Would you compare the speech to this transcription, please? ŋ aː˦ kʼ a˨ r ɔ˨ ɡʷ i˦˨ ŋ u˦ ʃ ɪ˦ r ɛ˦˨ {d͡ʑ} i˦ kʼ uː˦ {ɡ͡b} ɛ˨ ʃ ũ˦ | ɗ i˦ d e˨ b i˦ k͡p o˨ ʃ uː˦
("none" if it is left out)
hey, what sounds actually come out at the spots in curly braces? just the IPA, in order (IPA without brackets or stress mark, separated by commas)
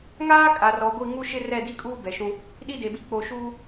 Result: d, b